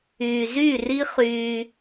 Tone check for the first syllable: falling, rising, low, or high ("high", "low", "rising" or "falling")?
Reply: low